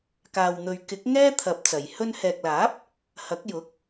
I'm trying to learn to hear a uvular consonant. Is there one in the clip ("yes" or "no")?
no